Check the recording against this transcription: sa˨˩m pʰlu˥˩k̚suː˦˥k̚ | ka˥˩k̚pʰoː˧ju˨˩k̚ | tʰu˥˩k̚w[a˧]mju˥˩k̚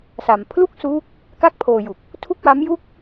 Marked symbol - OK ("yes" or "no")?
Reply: no